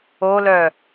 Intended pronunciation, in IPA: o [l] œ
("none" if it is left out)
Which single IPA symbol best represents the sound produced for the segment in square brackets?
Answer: l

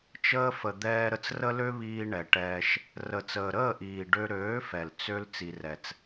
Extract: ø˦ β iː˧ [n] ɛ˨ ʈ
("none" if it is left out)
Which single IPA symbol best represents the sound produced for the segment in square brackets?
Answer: ɳ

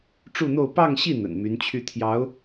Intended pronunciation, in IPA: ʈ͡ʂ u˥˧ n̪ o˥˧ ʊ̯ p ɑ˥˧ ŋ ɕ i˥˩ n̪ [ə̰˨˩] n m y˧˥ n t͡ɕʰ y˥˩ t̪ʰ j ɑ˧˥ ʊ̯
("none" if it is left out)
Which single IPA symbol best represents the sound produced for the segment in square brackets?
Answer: ə̰˨˩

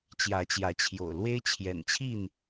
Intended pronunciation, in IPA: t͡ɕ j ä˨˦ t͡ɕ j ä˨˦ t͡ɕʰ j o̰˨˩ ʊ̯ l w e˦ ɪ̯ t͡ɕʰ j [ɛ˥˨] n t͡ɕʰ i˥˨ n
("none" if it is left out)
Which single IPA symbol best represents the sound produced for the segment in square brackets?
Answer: ɛ̰˨˩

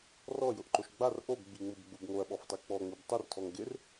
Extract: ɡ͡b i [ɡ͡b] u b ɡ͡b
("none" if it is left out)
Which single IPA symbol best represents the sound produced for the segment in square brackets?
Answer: ŋ͡m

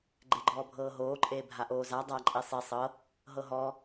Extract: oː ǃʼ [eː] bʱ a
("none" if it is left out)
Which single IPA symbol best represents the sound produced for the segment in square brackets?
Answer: eː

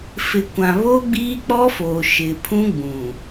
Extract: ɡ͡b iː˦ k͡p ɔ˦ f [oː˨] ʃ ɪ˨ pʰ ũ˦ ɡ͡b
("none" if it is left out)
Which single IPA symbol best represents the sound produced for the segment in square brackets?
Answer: oː˨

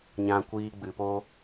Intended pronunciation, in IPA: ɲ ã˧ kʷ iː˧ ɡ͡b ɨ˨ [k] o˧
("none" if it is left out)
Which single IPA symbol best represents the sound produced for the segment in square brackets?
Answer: p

